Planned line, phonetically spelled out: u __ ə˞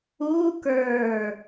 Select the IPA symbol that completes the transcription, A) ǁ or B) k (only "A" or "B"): B